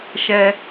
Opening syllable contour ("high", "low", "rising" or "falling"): high